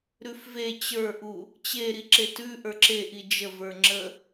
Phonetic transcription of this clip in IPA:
ɾʉfve t͡ɕə˞ʔu | t͡ɕeɾi ǁetʉ ʔə˞ǁeʔi d͡ʒəvə˞ ŋ͡ǁə

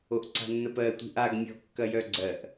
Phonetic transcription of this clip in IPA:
oʔǀa̤nːəpɜ tʷi̤ʔaɡ mʲɔ̤kːɐjœɡ͡ǀɜʔ

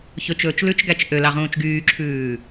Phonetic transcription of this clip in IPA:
çɵt͡ʃɵːt͡ʃ lʉt͡ʃɡæt͡ʃ ʔølɑʁũːt͡ʃ ɡyːǁʰʉː

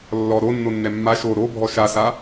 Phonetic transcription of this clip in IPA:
lːɔ ɾonːonːɛ mːa ʃo ɾobʱɔ ʃasa

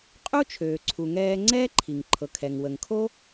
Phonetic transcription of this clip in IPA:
qʼu˥t͡ʃʰøː˩ ǀʰu˩ŋɛː˧ ŋ͡ǀɛː˥ǃʰi˩ŋǃʰɤ˩ kʰɛ˩ŋwə˩ŋ kʰo˥

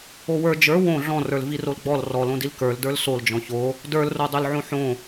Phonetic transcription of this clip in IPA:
owə˞ d͡ʒə˞ wõ ɮɔ̃rə˞l virolɡ͡bɔl rɔlõdil kə˞l də˞lsold͡ʒɔ̃ ço | də˞lrodˤølʕõ ħõ

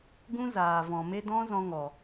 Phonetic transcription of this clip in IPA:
ɡũ˦zaː˨ vɔ̃˨me˦ dɔ̃˦zɔ̃˧ŋɔ˨

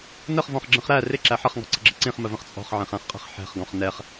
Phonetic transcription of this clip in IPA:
nəχvɔ̃χɡ͡ǁə̃χ ɾæ rɪǁæ ħʌχŋɔ̤ǀə̤ɡ͡ǁə̤ ǀĩχməvə̃χ t͡sʼɔ̤χʕɛ̃χæ̃χqʼɛ̤χ ħɛ̤χɡɔ̃χ nɛχ

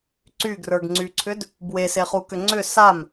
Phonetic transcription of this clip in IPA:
ǀyɡrə˞ɡŋ͡ǀyǀʰʏd | bweseχukʏ ŋ͡ǀʏ sam

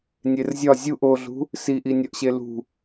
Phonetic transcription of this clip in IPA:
nʲerzʲɒ zʲuʔ oɮṳ | siʔinʲɒʔɕe lṳ

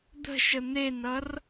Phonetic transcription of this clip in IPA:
d̪ə̤ʃə n̪enʌr

